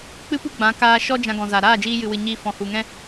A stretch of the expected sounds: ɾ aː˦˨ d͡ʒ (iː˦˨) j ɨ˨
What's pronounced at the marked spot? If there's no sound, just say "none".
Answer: iː˧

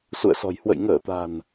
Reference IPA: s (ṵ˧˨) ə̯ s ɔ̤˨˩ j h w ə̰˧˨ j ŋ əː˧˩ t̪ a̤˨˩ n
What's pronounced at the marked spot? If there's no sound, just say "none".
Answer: ṵ˧˨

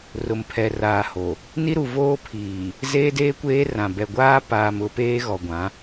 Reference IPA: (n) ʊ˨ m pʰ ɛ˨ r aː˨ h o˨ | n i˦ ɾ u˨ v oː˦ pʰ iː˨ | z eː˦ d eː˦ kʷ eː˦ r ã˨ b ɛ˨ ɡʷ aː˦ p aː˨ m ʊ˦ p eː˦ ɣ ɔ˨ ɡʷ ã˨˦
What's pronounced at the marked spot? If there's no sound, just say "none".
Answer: r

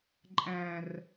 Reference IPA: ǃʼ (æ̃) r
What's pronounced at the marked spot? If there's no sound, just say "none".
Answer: æ̃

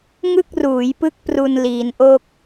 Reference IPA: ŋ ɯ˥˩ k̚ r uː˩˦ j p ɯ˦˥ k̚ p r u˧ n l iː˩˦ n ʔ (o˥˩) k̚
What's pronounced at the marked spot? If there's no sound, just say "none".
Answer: o˥˩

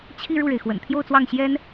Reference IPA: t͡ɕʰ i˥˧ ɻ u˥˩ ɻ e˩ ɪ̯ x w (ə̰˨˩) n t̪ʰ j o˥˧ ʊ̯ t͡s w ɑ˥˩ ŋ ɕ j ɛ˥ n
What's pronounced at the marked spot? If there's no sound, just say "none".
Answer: ə̰˨˩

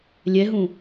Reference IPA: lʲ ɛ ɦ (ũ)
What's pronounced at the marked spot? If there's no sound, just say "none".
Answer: ũ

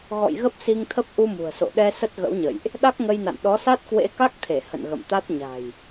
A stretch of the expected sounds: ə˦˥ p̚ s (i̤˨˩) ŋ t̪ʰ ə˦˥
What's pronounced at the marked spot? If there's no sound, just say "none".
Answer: i˧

